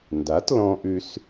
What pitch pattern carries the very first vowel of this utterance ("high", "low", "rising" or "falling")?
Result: rising